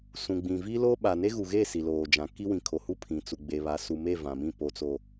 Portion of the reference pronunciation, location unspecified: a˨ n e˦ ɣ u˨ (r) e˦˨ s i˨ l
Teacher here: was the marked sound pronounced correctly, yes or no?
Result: no